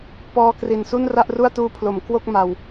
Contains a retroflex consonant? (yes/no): no